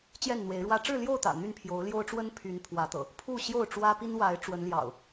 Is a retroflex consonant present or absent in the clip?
present